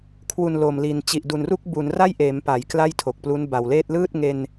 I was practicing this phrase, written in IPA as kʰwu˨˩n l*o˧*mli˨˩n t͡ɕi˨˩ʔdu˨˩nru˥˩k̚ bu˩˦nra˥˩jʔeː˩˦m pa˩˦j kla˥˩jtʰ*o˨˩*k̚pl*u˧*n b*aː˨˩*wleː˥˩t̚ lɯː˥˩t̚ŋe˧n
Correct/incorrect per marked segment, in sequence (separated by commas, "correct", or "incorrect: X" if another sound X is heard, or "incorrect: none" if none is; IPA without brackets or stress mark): incorrect: o˨˩, correct, incorrect: u˦˥, incorrect: a˨˩